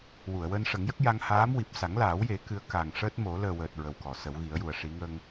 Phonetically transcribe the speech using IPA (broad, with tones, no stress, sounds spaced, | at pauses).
w u˨˩˨ ə̯ w əː˧ n ʂ ə˨˩˦ ŋ j ə˦˥ k̚ j a˧ ŋ h aː˧˥ m w i˨˩ p̚ s a˨˩˦ ŋ l aː˨˩˦ w j e˨˩˦ k ɨ˧˥ ə̯ k a˨˩ ŋ ʂ əː˦˥ t̚ m o˨˩˦ l əː˨˩ w əː˨˩ t̚ ɹ ə˨˩ w k ɔ˨˩˨ s ə˨˩˦ w ɣ i˨˩˦ ə̯ j u˨˩ ə̯ ʂ i˨˩˦ ŋ ə˧ ŋ